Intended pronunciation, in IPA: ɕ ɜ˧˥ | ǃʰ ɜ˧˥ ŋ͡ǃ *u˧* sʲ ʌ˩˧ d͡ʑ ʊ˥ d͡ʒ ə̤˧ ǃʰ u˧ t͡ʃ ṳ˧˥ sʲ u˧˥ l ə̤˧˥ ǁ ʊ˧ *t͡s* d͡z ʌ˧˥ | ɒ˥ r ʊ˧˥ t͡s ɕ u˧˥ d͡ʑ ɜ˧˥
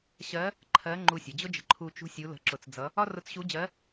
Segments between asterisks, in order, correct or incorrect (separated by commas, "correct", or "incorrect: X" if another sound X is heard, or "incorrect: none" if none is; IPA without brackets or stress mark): correct, correct